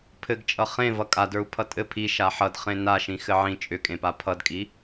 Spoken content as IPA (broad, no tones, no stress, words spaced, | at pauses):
pʰɘɡt͡ʃʼʌ χẽ vʌkʼadə˞u̯ pʰʌtʼɘ pʰi ʃaħʌd χẽnaʃĩ xɘʕĩ t͡ʃʼʏkʼẽpa pʰʌdkʼi